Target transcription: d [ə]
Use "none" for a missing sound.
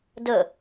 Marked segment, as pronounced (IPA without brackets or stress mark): ə